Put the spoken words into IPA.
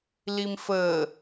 l i m f əː

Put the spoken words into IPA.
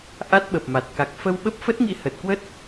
ʔ a˦˥ t̚ ɓ ə˨˩ p̚ m a˨˩ t̚ k a˨˩ k̚ f ə˧ w ɓ ə˦˥ p̚ f ə˦˥ t̚ ŋ ḭ˧˥ h ə˨˩ t̚ k w ə˦˥ t̚

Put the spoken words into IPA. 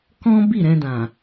k ɔ̃˦ b i˦˨ ɾ ɛ̃˧ d ã˨

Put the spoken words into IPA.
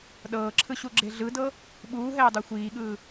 ɗ ɤː ǁʰ ɯ ɕ u ɡ͡ǁ e ɮ ɯ d ɤ | ɓ uː ɦ ɛː dˤ o xʷ iː ɠ ɯː

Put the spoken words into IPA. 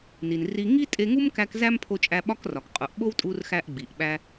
n i˩ n r i˧ ŋ i˥ tʼ e˧ ŋ u˥ m k æ˧ k z æ˥ m pʰ o˧ t͡ʃʼ æ˧ ɓ ɒ˥ k r ɒ˩ k qʼ u˩ ʔ ɓ o˥ w tʼ u˧ r x æ˧ ʔ ɡ͡b i˩ ʔ ɓ æ˧

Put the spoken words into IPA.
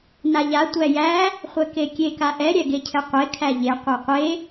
n a ʎ a tʷ æ j æ | χʷ ɛ k e kʲ e k a ʔ ɛ ɾʲ æ ɡ e cʰ ɛ qʷ e kʰ æ ʎ e qʷ a qʷ e

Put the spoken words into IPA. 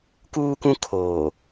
k uː˦ k ũ˦ kʰ oː˨

